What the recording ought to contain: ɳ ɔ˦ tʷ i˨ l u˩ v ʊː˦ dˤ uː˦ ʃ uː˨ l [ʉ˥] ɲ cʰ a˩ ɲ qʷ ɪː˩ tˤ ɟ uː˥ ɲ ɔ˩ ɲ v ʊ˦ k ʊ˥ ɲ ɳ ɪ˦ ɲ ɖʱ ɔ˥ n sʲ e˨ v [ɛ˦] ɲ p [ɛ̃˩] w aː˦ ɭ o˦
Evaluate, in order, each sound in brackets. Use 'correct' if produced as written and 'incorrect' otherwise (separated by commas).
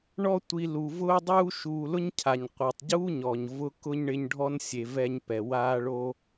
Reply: incorrect, correct, incorrect